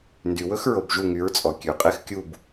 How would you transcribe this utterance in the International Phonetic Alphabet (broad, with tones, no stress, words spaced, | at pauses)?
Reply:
ndy˩wɵ˥xɹo˩b ʒu˥˩ŋy˩˥ɹt͡sʼɔ˩ kʲʉ˩ qʼe˥xkʲu˥˩b